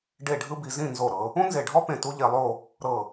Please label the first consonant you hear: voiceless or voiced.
voiced